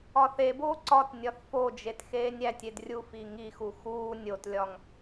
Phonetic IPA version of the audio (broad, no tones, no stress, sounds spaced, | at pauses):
ɒ θ e b oː ǀ ɒ t nʲ ɒ θ f o d͡ʒ e t x eː nʲ æ tʲ e d rʲ u f i ŋ i x u x uː nʲ o t lʲ ɒ ŋ